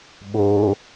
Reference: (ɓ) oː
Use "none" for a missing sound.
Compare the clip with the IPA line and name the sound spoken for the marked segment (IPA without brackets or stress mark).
ɓ